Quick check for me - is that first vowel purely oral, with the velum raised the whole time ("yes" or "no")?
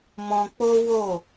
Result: no